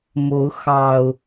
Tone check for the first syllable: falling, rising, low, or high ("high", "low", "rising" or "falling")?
rising